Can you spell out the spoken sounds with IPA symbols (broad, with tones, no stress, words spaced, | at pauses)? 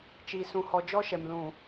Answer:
t͡ʃi˨sũ˨hɔ˨ d͡ʒɔ˦ʃɛ˨m lũ˨